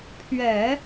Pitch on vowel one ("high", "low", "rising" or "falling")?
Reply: low